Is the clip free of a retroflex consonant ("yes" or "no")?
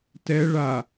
no